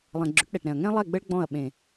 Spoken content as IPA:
lˠ ɛ̃˨ ɡ͡ǁ ʊ˨˦ ʈ ɗ ɛ˨ ʈ ɾ ɛ̃˨ ɐ̯ ŋ ɛ̃˦ lˠ ɛ˦˨ ɡ͡b ə˦ ɭ ɡ͡b ɔ̃˦˨ ɐ̯ ɓ ẽ˨

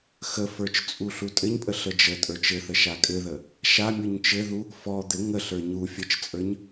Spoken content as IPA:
x ə f ə˞ t͡ʃ t͡sʼ u ɬ u tʼ ɘ ɲ pʼ ə ɬ ə d͡ʒ ə tʼ ə˞ t͡ʃ ɘ θ ə ʃ a kʼ ɘ ð ə | ʃ a mʲ u ɲ t͡ʃ ɘ ð u | f ɔ d̪ ɘ ŋ ə ɬ ə˞ ɲ u fʲ ɘ t͡ʃ t͡sʼ ə˞ ɲ

